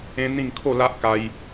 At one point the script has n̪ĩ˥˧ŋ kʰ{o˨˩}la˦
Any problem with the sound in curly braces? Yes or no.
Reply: yes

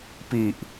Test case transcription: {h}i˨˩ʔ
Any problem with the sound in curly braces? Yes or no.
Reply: yes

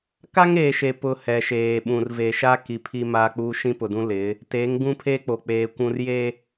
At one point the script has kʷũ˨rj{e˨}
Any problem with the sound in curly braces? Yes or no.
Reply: no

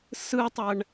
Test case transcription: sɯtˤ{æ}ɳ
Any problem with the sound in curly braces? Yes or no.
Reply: no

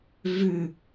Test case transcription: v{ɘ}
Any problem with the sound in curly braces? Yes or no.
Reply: yes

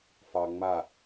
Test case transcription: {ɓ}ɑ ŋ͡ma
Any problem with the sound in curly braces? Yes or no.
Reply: yes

